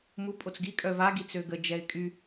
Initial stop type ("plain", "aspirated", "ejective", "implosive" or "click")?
ejective